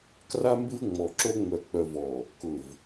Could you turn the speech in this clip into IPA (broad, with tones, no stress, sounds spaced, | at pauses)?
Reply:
k r a˦ m b ɪ˦ v ŋ͡m ɔ˨ ǁ o˦ ŋ͡m œ˨ k͡p œ˨ v ɔ˨ | k ʊ˨ v